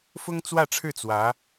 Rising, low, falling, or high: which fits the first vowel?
high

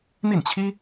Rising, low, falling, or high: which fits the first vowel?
falling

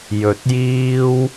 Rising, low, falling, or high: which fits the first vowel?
low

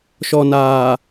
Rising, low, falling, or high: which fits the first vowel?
low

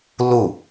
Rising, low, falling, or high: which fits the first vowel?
falling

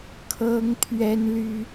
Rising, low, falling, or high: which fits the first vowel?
high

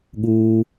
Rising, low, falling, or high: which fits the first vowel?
high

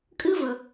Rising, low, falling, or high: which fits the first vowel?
high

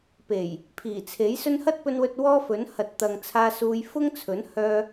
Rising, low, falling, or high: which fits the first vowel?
low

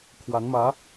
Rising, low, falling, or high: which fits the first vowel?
rising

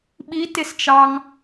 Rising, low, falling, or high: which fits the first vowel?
rising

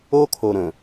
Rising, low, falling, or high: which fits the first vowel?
high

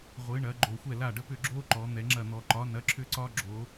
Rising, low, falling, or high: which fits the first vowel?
rising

